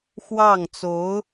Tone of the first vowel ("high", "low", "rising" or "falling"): falling